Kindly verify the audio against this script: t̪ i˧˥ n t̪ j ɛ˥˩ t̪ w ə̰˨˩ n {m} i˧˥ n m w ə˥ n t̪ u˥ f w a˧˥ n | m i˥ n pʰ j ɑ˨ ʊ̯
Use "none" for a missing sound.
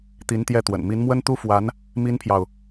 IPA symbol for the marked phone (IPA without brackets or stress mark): m